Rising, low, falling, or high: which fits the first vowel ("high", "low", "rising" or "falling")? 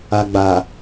low